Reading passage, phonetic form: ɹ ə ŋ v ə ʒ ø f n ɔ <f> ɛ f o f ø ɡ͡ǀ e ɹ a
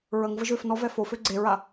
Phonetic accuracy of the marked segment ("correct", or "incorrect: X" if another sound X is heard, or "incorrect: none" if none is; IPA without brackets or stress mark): incorrect: v